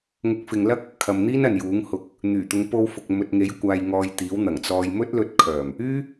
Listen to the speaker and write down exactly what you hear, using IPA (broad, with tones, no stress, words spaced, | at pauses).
ŋʊ˨˥k̚fɪ˨ŋ lɐ˥k̚ | kʰɐ˨mn̪iː˥n ɐ˨njuː˨˥ŋhʊ˧k̚ | n̪yː˨˩t̪ʊ˨˧ŋpo˧wfʊ˨k̚ mɵ˨t̚ŋe˨˥jkʷaː˨jŋɔː˨j t̪iː˨˥wn̪ɐ˨˩ŋ t͡sɔː˨jmɵ˥t̚lɵ˧t̚ kʰœː˨˩m | yː˥